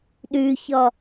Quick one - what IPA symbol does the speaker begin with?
ɗ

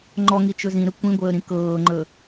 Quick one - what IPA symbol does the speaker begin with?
ŋ͡ǃ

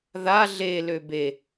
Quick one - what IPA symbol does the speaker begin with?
ð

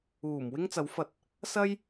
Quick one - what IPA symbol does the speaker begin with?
uː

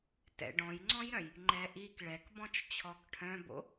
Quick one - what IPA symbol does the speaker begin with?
t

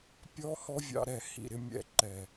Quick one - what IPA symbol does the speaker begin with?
pʲ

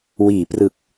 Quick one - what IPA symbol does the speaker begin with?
w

